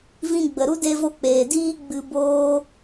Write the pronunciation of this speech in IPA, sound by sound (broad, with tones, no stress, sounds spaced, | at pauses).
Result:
v ĩ˧ ɡ͡b ə˨ ɾ u˦ d e˧ v o˧ k͡p eː˨ d iː˦ ɡ͡b ɨ˧ b oː˦